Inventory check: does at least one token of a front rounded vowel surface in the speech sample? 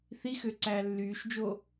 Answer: yes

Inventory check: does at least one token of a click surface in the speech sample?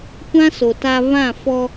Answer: no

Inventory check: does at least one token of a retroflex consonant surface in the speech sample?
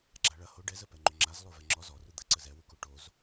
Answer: yes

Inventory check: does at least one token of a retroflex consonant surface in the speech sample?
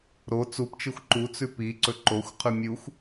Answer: no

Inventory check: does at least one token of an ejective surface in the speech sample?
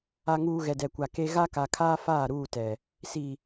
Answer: no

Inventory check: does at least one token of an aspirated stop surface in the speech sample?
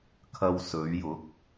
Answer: yes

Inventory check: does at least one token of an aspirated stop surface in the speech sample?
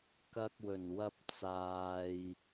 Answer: no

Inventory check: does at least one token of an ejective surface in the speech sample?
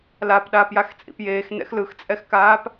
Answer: yes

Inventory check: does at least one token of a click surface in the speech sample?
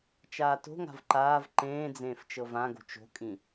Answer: yes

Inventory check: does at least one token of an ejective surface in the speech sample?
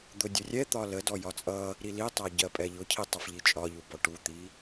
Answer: yes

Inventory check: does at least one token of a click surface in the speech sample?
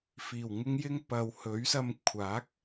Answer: no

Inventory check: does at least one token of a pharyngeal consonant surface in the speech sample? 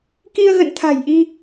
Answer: no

